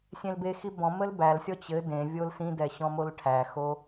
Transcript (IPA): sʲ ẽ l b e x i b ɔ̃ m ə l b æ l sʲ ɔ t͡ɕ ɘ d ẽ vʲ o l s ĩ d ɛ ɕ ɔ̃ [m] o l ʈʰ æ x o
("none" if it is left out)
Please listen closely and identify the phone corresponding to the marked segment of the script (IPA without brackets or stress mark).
m